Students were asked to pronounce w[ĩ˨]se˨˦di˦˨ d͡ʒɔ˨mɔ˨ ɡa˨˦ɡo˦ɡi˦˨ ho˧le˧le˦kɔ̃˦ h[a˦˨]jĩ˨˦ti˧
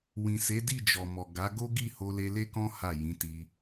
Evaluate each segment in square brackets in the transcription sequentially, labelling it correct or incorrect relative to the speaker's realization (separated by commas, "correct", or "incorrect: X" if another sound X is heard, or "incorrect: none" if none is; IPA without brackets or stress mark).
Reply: correct, correct